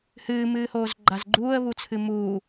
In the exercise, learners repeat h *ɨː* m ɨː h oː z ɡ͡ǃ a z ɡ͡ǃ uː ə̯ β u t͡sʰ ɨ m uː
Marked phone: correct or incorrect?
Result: correct